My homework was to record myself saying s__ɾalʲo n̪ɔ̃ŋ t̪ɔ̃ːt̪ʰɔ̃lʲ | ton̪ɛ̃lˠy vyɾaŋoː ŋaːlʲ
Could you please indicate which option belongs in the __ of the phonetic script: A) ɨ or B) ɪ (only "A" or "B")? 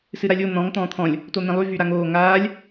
A